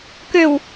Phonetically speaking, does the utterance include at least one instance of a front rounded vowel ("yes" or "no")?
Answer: yes